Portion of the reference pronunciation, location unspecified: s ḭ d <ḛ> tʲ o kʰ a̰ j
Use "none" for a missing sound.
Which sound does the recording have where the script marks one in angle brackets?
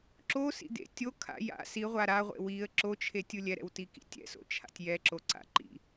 ḛ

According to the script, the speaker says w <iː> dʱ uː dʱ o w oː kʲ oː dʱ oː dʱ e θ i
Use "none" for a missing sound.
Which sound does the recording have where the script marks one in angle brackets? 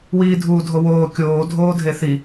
iː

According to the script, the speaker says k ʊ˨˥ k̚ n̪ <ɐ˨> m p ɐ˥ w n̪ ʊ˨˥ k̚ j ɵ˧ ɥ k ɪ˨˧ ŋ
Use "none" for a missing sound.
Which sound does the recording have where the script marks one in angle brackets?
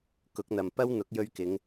ɐ˨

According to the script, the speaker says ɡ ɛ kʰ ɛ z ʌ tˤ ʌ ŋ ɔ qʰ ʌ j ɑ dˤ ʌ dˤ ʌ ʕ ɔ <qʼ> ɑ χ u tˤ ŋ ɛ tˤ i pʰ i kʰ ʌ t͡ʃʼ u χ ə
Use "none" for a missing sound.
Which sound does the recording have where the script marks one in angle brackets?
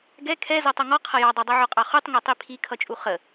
qʼ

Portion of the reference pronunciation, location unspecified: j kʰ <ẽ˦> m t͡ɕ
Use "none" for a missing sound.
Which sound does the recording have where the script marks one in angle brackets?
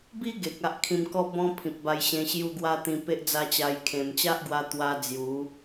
ẽ˨˩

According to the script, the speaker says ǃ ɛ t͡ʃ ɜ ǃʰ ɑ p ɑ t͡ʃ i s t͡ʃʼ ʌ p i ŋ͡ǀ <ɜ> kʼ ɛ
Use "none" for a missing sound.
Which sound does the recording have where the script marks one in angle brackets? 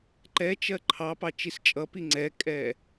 ɛ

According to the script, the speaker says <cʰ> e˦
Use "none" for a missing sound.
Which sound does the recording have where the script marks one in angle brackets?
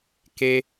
k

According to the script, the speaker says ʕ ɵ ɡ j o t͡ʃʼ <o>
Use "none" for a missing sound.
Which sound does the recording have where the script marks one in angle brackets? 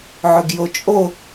o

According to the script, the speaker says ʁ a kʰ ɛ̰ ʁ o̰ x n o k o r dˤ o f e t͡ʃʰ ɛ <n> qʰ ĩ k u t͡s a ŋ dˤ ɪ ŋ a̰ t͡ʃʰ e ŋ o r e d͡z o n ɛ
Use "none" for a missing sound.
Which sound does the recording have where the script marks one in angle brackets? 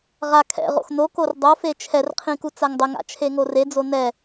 r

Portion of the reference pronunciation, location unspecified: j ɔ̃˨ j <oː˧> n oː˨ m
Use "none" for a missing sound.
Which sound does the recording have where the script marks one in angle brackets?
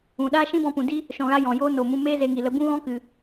oː˦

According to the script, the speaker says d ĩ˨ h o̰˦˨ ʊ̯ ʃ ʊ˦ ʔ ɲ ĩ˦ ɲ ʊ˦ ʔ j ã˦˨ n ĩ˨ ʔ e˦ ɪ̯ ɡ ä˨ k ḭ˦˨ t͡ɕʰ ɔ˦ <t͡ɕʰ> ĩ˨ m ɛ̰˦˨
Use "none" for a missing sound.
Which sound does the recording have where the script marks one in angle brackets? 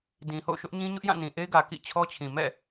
t͡ɕʰ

